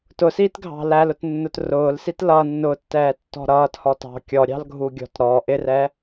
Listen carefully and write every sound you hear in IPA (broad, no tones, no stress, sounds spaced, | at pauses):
t ʊ s iː t ɡʱ ɑ̤ l æ l ʊ t nː ʊ t r ʊː l s i t l ʌ nː ʊ tː ɛː tː ɔ̤ ɾ ʌː t h ɔ t ɑ̤ kʲ ɔ ɾʲ ɑ̤ l ɡʱ u ɡʲ ɔ̤ t ɾ ɔ ʔ ɪ r ɛ